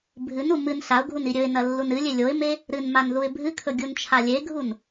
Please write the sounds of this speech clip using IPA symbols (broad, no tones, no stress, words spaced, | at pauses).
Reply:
bʱɨnu mɨn ɬaʊ̯ɡʱun iɾʲɵɪ̯nɐ lːunɨlʲe lʲoɪ̯me | ɾɨnman ðuɪ̯bʱɨkʰɵ ɡʲunt͡ʃʰalʲeɡʱun